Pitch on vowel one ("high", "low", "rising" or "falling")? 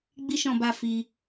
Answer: high